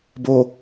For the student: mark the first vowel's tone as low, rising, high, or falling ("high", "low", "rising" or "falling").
low